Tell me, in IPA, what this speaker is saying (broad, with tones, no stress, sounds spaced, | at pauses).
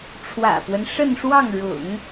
ʈ͡ʂʰ w ä̰˨˩ p w ə˦ n ʂ ə˥˧ n ʂ w ɑ˥˩ ŋ ɻ ʊ̰˨˩˦ ŋ